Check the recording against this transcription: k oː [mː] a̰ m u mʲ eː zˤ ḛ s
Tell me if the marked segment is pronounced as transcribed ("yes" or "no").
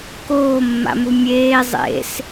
yes